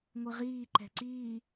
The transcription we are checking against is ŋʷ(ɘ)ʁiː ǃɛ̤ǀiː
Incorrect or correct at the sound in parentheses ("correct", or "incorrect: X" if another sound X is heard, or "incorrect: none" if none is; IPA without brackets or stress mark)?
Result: correct